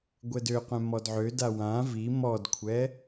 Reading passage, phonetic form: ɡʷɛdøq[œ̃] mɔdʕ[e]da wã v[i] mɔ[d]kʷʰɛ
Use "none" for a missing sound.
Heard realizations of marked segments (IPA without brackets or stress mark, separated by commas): œ̃, ø, i, d